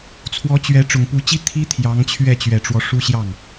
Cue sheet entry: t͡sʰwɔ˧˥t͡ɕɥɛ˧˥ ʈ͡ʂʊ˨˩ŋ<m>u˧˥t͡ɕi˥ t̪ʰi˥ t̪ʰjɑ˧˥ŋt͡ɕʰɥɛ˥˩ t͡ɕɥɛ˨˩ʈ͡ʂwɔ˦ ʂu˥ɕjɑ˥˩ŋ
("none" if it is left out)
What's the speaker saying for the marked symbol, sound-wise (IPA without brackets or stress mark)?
p